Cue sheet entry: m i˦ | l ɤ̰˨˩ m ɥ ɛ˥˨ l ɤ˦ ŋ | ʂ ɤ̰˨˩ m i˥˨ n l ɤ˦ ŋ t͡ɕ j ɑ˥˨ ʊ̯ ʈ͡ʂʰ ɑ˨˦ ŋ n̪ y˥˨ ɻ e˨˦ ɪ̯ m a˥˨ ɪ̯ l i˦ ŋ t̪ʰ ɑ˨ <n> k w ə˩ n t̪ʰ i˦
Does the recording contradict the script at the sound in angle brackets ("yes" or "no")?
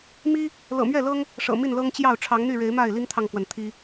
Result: yes